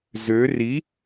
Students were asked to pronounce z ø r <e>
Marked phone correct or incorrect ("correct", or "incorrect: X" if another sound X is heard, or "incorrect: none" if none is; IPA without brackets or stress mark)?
incorrect: i